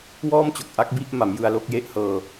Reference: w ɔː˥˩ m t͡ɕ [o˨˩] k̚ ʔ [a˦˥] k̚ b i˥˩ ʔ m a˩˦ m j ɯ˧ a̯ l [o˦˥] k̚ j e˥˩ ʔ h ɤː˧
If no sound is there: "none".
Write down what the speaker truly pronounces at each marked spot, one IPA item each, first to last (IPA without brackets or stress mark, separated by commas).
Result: o˨˩, a˦˥, o˥˩